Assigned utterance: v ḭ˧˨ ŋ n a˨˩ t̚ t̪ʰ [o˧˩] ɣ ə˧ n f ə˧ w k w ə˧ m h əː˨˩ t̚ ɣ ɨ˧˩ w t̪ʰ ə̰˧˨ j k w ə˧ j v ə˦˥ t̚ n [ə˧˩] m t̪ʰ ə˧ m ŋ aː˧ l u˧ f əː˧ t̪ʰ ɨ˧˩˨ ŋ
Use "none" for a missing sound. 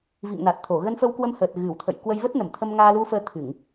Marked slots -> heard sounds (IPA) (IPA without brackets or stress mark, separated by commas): o˧˩, ə˧˩